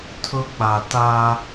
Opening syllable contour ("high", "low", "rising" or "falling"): high